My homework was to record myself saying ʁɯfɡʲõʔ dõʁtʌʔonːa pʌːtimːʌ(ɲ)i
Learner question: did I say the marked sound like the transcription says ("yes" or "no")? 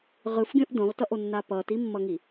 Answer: no